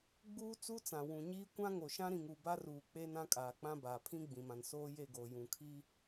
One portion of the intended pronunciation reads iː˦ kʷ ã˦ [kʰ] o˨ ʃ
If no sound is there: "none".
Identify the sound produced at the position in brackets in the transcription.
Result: ŋ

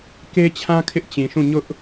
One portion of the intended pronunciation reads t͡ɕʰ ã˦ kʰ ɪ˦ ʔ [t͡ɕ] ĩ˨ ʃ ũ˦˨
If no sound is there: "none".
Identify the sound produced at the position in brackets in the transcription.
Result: t͡ɕ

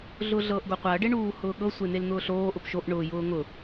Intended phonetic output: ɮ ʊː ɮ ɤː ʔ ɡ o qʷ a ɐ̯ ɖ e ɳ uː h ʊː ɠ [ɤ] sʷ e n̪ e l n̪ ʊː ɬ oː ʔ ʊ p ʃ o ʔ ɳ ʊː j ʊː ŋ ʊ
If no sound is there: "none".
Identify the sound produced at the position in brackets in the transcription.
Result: ɤ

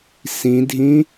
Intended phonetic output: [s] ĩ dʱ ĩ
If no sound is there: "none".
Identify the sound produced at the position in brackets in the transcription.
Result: s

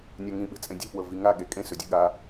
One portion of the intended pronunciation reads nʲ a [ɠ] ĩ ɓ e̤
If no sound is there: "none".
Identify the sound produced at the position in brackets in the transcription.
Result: ŋ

